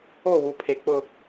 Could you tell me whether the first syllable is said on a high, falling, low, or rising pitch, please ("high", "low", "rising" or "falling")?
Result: falling